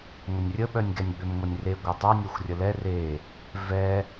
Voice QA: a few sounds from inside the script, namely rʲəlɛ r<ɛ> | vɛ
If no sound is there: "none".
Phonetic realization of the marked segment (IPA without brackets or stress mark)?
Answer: e